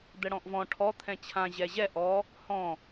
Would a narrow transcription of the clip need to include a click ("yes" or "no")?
no